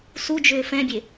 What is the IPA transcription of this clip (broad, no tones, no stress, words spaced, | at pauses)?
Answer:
sud͡ʒʏː fɛ̃bʲe